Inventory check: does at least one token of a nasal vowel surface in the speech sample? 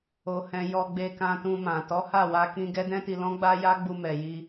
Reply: yes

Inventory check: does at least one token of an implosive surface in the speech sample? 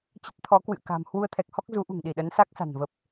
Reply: yes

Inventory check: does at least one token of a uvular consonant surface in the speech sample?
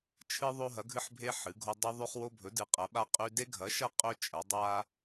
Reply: yes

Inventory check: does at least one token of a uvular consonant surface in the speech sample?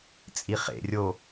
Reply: yes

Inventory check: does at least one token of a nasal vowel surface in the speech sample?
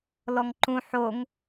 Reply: yes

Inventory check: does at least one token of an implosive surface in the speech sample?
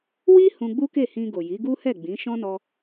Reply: no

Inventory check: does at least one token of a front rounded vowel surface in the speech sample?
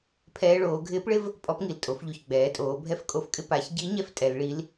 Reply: no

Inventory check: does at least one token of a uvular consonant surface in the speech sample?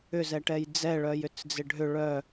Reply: no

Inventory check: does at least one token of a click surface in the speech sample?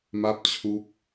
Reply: no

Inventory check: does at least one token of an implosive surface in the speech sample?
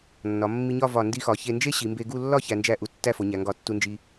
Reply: no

